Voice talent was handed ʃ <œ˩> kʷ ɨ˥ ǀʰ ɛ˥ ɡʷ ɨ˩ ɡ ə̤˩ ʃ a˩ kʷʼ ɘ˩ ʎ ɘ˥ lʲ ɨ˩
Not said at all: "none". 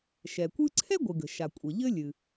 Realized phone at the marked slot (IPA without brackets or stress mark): ɛ˩